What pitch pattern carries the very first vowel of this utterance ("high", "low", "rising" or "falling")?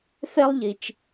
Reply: high